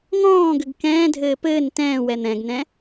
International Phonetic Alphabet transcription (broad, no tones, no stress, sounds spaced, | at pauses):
ŋ ɔ̃ː ɡ ʏ ɡ k ɛ̃ː dʱ ɘː p ɘː n t ɛ̃ː w ɛ n̪ ɛ̃ ɡ n ɛ̃